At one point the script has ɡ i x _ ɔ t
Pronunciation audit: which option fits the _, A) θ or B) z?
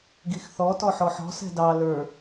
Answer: A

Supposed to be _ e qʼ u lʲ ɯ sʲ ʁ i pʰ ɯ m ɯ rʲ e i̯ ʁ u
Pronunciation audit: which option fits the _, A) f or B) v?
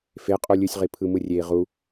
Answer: A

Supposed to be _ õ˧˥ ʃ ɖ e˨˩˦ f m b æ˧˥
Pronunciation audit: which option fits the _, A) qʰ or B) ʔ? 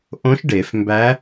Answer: B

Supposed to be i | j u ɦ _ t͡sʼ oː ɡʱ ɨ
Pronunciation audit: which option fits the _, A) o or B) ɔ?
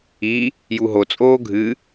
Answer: A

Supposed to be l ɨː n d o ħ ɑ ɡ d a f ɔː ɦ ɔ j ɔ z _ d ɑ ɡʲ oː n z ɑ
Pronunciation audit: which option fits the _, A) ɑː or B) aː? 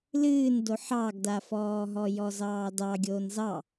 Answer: A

